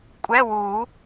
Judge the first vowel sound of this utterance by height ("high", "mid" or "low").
mid